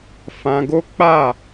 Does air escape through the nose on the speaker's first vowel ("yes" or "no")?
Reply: yes